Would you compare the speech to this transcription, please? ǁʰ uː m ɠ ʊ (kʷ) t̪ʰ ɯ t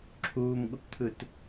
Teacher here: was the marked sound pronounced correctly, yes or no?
yes